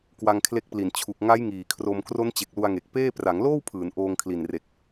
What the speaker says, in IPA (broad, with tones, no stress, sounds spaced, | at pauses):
k w a˧ ŋ kʰ l e˦˥ k̚ p l i˨˩ n t͡ɕʰ u˨˩ k̚ ŋ a˦˥ j ŋ iː˨˩ kʰ r o˧ m k r o˦˥ n t͡ɕ e˨˩ k̚ l u˧ a̯ ŋ e˨˩ k̚ p eː˥˩ p r a˩˦ ŋ l oː˥˩ w pʰ ɯː˩˦ n ʔ oː˧ ŋ kʰ l i˨˩ n r e˨˩ k̚